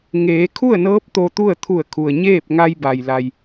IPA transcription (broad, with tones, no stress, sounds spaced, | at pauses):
ŋ eː˩˧ kʰ u˥˨ ə̯ n ɤː˧˥ p̚ t̪ o˧ t̪ u˥˨ ə̯ t̪ʰ u˧˩ ə̯ kʰ u˩ ə̯ ɲ eː˥˨ p̚ ŋ a˧ j b a˩ j l a˩ j